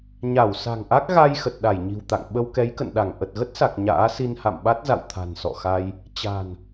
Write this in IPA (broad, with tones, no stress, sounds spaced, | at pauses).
ɲ a˧˩ w s a̤˨˩ ŋ ʔ a˦˥ k̚ ɣ a˧ j x ə˨˩ t̚ ɗ a˧˩ j ɲ i̤˨˩ w t̪ a̰˧˨ ŋ ɓ ə˧ w k ɛ˨˦ j k ə̰˧˨ n ɗ a˧˩ ŋ ʔ ə˨˩ t̚ ɣ ə˦˥ t̚ s a˨˩ k̚ ɲ a̰ː˧˥ s i˧ n h a̰˧˨ m ɓ a˦˥ t̚ z a̰˧˨ w t̪ʰ a̤˨˩ n s ɔ̰˧˨ x a˧ j | t͡ɕ a̤˨˩ n